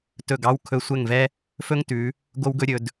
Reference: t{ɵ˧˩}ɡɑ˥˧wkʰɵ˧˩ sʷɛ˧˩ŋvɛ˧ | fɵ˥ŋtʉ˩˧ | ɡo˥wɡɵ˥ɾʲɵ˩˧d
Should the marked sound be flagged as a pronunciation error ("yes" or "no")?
no